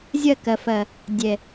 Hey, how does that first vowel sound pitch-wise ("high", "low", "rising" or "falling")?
falling